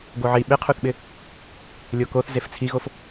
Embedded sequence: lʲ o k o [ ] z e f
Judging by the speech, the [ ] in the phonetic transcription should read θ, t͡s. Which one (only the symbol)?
θ